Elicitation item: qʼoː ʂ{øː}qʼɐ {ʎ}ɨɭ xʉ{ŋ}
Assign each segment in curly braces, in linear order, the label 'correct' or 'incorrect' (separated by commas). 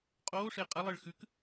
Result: incorrect, incorrect, incorrect